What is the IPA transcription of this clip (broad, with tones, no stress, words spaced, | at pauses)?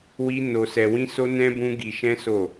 wi˦ no˧sɛ˧wĩ˦so˦ nɛ̃˦bũ˦ɡi˧ ʃɛ̃˦so˦˨